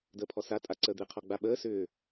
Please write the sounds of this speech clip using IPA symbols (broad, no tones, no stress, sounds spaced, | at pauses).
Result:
d əː pʰ ɔ s a tʼ a ǀ əː d̪ e qʰ ɔ ɡ͡b a ɓ əː s ʏː